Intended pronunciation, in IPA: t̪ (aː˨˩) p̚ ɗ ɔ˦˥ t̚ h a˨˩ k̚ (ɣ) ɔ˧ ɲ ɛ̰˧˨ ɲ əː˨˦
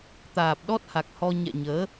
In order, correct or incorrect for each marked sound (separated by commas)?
correct, incorrect